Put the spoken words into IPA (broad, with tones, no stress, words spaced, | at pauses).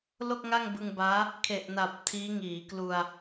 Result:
lo˥˩k̚ŋa˥˩ŋbɯ˧ŋbaː˦˥ | kʰe˨˩ʔna˨˩p̚ tʰiː˦˥ŋiː˩˦klu˧a̯